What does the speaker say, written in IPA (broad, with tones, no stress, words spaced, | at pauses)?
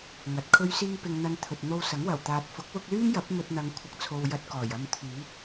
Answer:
ŋɐ˨˥t̚kʰɵ˥ɥ siː˧pɪ˨ŋn̪ɐ˨˧n t̪ʰɵ˨t̚n̪o˧wsɐ˨˥ŋ wɐ˨˩wt̪aː˨t̚fʊ˨˥k̚ wʊ˧k̚lyː˥mjɐ˨˥p̚ mɵ˧t̚n̪ɐ˨˧ŋ kʷʰɐ˨k̚t͡sʰo˨w jɐ˧t̚kɔː˨˩jɐ˧mt̪ʰyː˨˥t̚